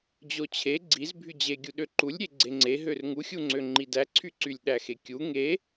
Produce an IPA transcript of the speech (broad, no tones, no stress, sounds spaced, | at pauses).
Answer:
d͡ʑ o t͡ɕʰ e ɡ͡ǀ i z bʱ y d͡ʑ e ɡʲ u ɗ ø ǃ u lʲ ɾʲ e ɡ͡ǀ e ŋ͡ǀ e ɦ ø r ŋ u xʲ u ŋ͡ǀ ø ŋ͡ǃ i d æ ǀʰ y ǀ y lʲ ɗ æ x e kʲ u ŋ e